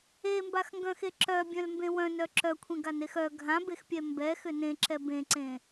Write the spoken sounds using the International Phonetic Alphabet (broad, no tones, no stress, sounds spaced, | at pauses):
e m b a x ŋ ɡ œ̃ x e ǁ œ bʲ œ̃ l m b ẽ w œ̃ n œ ǁ œ kʷʰ ẽ ɡ a n e x œ ɡʱ ã b e x pʲ ɛ m b ɛ x ʏ n ẽ ǁ ɛ b ẽ ǀ ẽ